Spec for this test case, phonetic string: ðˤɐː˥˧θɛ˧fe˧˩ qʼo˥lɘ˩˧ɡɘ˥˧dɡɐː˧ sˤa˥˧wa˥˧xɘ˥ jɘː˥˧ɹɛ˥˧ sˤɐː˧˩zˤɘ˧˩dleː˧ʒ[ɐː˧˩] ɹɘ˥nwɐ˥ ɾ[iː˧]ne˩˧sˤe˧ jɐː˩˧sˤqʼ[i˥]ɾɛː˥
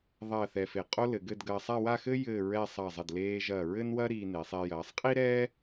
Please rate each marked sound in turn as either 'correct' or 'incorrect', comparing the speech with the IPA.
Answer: correct, correct, correct

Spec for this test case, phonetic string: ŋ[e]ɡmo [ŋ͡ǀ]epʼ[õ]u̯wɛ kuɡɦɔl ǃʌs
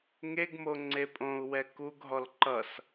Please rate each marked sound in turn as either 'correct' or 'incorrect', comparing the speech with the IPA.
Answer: correct, correct, correct

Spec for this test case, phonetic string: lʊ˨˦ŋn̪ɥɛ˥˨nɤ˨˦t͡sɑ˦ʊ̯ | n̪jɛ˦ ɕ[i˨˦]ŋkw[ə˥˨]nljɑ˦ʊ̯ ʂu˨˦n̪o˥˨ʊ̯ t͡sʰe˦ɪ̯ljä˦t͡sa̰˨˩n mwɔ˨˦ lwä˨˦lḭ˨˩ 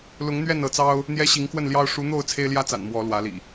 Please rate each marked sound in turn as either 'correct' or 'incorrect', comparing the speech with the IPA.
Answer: correct, correct

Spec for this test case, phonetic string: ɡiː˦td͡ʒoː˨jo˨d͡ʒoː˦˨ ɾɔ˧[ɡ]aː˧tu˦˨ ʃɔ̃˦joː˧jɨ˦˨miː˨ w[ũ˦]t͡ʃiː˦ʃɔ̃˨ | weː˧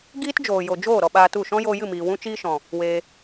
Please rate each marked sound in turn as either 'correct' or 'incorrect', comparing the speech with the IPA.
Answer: incorrect: ɓ, correct

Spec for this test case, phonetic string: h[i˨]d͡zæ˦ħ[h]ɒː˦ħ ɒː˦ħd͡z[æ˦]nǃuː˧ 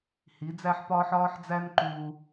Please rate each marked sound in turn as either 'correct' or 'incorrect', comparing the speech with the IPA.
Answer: incorrect: i˨˦, incorrect: p, correct

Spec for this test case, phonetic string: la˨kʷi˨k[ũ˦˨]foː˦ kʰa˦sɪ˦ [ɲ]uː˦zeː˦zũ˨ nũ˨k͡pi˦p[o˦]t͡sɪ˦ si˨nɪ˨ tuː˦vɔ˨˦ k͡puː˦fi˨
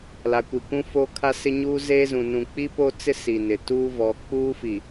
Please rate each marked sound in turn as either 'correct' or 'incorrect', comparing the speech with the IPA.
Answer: incorrect: ũ˦, correct, correct

